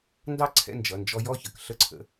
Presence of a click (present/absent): present